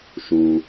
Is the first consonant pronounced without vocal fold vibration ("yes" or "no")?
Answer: yes